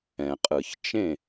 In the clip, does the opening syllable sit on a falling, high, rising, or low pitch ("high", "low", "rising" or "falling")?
low